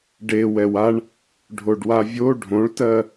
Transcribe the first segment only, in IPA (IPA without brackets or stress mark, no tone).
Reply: ɖ